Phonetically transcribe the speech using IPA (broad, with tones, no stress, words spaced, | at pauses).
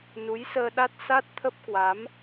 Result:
nu˨˦jsəː˧ɗa˦˥t̚ sa˦˥t̚t̪ʰə˦˥p̚kwa˨˦m